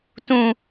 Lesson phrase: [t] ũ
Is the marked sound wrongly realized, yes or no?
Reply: no